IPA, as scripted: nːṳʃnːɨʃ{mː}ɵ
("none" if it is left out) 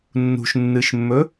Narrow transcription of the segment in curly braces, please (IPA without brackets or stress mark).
mː